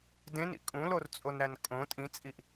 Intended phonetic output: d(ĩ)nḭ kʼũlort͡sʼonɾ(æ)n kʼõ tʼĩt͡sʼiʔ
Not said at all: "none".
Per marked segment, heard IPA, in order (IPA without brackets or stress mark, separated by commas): ẽ, æ